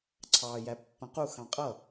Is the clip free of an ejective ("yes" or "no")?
no